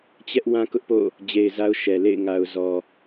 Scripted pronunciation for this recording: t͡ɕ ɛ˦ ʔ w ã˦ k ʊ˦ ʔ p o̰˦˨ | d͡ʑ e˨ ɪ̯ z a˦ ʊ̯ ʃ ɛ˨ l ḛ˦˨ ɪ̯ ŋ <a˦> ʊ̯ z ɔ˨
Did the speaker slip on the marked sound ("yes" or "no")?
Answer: yes